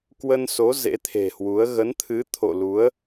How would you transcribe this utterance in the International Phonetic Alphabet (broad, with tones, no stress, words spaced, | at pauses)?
kwə˧nso˨˦ zḛ˧˥t̪ʰe̤˨˩hwu˨˦ə̯ ɣə˨˦nt̪ʰɨ˨˦ t̪ʰo̰˧˨lu˨˦ə̯